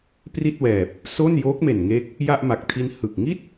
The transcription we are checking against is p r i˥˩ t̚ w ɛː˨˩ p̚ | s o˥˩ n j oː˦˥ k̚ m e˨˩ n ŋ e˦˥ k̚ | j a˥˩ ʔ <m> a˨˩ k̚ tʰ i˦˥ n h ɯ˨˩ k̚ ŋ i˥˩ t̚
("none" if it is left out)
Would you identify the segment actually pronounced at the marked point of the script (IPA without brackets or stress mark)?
m